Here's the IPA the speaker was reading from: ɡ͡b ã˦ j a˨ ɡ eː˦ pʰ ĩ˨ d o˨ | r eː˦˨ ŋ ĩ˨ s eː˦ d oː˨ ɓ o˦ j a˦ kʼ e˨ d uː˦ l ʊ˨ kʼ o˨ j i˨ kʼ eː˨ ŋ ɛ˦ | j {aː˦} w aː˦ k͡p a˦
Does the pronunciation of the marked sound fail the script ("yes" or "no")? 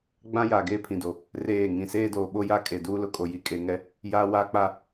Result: no